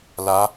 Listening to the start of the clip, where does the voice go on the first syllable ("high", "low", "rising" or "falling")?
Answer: rising